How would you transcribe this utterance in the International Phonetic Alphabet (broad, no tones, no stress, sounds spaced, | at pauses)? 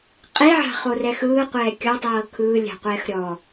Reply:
qʼ i ʕ a̤ χ o r ɛ x ɯː qʷ ɛː kʲ ɔ tˤ ɤː kʰ ɯː lʲ a̤ qʷ ɛː x ɾʲ ɔ